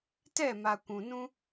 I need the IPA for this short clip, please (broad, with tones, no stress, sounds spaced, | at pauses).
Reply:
t ɛ˦˨ m a˨ kʷ ũ˨ n ũ˦